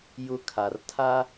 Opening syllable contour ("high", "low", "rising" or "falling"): rising